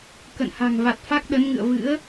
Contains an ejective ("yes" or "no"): no